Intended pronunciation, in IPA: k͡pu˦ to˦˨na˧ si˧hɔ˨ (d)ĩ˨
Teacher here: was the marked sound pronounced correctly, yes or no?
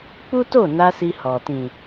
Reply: no